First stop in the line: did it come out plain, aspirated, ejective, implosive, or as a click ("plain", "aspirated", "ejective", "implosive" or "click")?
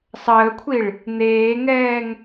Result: aspirated